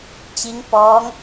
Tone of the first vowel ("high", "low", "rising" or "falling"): rising